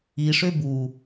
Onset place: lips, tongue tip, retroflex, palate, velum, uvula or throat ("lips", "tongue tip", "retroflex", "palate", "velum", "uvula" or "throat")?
retroflex